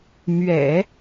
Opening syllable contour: low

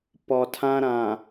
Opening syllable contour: low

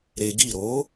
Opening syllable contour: low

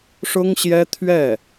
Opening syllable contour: high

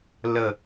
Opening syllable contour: falling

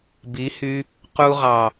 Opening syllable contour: rising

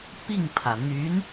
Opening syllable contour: falling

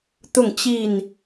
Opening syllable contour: falling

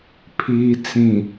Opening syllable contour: low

